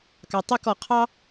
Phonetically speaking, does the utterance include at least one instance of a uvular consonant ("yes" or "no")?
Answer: yes